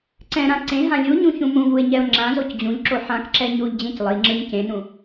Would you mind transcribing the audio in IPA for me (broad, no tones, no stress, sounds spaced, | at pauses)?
ǀ ɛ̃ ɾ ã ǀ ẽ ɦ ã lʲ u ɲ ũ ç ũ m ũ v u ɪ̯ ɲ ɛ ʊ̯ ŋ͡ǁ ã z o c d͡ʑ ũ ʎ ǁ o ħ ã k ǁ ɛ ɲ u ʎ d͡ʑ ẽ c lˠ i ŋ͡ǁ ɯ ɲ c ẽ n ũ